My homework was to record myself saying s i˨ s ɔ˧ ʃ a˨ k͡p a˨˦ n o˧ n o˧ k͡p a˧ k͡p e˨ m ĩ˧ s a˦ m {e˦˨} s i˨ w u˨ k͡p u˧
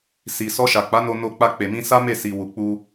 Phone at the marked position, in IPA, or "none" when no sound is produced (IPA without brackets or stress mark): e˦˨